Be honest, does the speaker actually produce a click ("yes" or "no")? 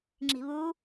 yes